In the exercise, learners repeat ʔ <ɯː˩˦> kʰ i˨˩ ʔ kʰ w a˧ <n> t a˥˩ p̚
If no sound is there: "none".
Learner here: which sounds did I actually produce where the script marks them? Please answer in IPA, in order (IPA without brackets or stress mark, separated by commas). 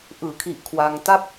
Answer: ɯː˩˦, ŋ